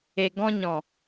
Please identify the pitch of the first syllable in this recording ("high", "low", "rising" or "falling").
low